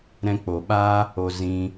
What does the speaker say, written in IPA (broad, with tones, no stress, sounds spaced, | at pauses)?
ɾ ɛ̃˧ k͡p o˨ ɓ a˦ | o˧ z ĩ˧